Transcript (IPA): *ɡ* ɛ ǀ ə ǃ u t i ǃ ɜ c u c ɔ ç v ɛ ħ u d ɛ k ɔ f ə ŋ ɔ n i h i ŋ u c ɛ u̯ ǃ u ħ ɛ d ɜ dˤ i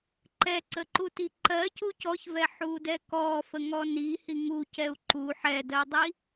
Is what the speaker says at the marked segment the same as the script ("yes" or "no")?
no